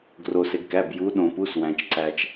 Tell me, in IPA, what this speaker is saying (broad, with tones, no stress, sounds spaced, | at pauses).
ɡ r o˩ s e˩ ɡ k æ˩˧˩ b j u˩˧ ɗ õ˩ p u˩˧˩ s w æ̃˩ t͡ʃ ǀ æ˩ t͡ʃ